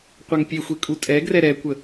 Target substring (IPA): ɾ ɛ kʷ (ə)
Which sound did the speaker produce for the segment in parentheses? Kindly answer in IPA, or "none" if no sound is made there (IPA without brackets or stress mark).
ə